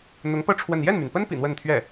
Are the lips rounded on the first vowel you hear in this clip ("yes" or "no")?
yes